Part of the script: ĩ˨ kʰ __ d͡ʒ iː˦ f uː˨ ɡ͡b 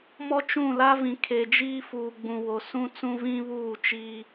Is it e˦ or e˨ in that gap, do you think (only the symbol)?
e˨